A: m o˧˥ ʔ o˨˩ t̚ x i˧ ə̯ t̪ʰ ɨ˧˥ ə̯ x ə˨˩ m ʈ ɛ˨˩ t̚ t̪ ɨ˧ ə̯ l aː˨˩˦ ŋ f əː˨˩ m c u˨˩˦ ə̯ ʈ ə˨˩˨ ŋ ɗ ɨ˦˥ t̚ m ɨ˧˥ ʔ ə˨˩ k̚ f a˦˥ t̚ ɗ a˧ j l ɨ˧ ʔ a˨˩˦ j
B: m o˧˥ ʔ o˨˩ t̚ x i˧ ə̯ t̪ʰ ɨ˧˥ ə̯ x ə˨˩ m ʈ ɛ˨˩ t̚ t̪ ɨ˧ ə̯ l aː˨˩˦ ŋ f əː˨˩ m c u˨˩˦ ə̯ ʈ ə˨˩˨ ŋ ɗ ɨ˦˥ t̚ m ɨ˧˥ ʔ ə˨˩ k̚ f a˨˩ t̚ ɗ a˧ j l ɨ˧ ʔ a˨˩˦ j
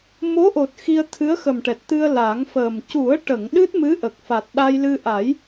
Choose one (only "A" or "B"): B